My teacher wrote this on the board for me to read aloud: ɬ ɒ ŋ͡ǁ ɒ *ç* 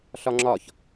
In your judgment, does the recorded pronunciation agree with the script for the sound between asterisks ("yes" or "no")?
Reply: yes